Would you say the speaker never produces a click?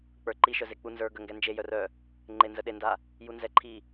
no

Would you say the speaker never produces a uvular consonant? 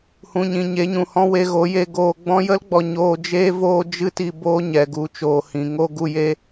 yes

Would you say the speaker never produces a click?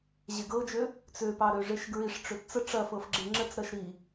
no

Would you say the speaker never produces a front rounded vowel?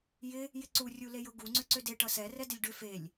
no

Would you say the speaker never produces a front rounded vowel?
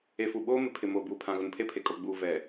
yes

